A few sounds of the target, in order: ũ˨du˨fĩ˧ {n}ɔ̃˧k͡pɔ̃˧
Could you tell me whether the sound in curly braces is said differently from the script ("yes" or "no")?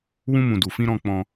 yes